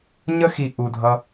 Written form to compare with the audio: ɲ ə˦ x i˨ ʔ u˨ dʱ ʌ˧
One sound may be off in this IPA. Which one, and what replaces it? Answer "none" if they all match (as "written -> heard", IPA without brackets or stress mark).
none